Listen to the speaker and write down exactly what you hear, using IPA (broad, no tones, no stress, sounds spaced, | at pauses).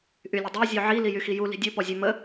ʔ y lʲ ə dˤ a zʲ ø ʕ i l i j y x i j u l i̤ dʲ u p ɔ zʲ ɛ m ə